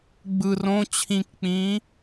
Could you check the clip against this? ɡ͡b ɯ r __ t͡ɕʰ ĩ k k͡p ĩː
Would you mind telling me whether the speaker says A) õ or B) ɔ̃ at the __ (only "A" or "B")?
A